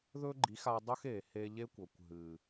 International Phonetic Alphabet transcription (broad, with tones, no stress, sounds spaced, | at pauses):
ð ɵ˦ ɡ͡ǃ i˨˦ x a˧ dˤ ʉ˦ x e˨ h e˧ ʎ e˦ kʷ ɵ˨ kʷ ɦ ɨ˨